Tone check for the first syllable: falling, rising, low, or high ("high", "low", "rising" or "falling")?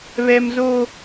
high